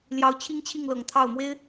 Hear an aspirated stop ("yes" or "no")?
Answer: yes